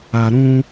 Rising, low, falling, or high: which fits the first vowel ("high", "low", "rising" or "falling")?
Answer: low